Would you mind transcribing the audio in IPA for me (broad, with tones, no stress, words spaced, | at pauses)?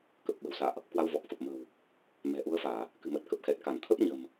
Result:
kə˨˩p̚ɓə̤˨˩wsa̰ː˧˨ʔ | kwa˧wvɔ˨˩k̚fə˨˩p̚ mə̤˨˩w | mɛ̤˨˩ʔu˨˦ə̯faː˧˩˨ | kɨ̤˨˩mə˨˩t̚kə˨˩p̚ xɛ˨˩t̚ka˧˩nt̪ʰə˦˥p̚ɲə̤˨˩m